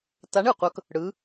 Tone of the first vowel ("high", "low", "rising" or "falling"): rising